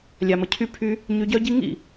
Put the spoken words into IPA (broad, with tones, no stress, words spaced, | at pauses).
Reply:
lʲa˨mə˨ cʰy˧ pʰy˧ | ɲy˧ɟœ˦ ɟi˦ ŋḭ˦˨